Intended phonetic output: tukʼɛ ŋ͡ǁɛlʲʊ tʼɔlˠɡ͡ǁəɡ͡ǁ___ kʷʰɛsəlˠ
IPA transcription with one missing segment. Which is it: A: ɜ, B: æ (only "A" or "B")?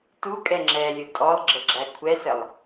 B